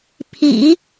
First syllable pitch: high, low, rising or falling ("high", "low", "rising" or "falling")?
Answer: low